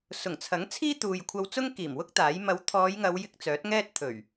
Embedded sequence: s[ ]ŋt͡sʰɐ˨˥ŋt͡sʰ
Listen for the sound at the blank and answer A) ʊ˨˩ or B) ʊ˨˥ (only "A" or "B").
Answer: A